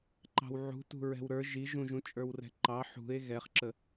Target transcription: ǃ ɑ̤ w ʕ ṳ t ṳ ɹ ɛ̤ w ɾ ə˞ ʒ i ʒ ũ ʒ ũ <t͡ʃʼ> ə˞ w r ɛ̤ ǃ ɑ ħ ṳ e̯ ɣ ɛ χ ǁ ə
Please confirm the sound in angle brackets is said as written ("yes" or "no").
yes